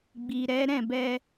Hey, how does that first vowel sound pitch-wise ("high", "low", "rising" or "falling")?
low